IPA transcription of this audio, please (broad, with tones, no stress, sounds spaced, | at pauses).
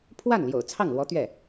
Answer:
pʰ w a˥˩ n l j o̰˨˩ ʊ̯ t͡sʰ ɑ˥˩ ŋ l w ɔ˧˥ t̪ ɥ ɛ˥˩